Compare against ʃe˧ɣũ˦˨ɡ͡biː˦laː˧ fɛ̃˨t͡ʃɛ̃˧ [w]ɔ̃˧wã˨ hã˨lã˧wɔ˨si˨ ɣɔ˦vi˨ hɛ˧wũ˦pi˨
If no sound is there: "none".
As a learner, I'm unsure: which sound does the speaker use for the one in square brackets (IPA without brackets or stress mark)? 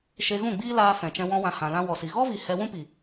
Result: w